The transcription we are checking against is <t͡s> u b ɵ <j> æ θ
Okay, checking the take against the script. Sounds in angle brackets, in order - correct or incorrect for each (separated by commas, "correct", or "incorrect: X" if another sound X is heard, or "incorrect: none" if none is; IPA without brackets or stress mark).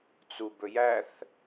correct, correct